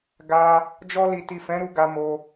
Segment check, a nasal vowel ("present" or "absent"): present